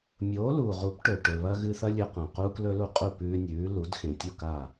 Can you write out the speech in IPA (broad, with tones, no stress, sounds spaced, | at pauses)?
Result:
mʲ oː˩˥ l uː˩ ʁ u˩˥ p ʈ ɵ˩ ʈ ɵ˩ β ɐ˧ ɣ ɨ˧ θ ɐ˥ lʲ ɵ˧ q ã˩ q u˥ k l ɵ˥ l u˥˩ qʼ u˥˩ p ʉː˧ nʲ ʉː˩˥ l u˩˥ d x ẽ˩ tʲ u˥˩ k a˥˩